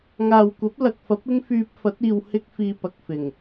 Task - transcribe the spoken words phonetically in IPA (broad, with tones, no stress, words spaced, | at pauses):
ŋaː˨wkʷɐ˨˥p̚lɐ˨k̚fɐ˨˥p̚ ɪ˥ŋfyː˧p̚fɐ˨˥t̚ iː˨w hɪ˥k̚fiː˧pɐ˨k̚ fɪ˨˩ŋ